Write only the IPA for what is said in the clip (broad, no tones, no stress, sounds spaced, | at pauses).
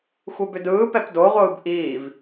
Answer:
xʷ e b ʏ d ɯː p ɛ p d o ʁʷ ɯː b ʔ iː v